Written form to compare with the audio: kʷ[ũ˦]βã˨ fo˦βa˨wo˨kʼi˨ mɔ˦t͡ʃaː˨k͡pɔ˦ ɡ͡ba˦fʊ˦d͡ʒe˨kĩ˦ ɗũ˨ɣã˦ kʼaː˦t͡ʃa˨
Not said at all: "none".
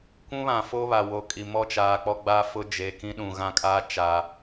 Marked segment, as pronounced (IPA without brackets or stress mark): ũ˦